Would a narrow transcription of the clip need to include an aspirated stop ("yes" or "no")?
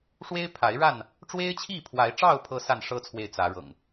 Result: yes